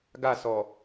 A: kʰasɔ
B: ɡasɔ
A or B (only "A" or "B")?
B